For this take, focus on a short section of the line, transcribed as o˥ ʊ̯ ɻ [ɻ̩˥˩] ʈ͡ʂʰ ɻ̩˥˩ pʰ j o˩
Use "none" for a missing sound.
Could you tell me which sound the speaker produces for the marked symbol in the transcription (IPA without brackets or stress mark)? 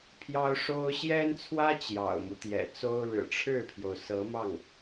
ɻ̩˨˩